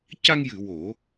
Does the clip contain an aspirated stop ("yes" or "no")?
no